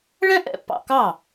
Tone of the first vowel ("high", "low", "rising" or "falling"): high